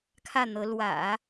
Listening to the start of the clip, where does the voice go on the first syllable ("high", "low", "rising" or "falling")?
falling